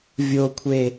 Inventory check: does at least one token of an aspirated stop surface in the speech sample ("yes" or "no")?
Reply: yes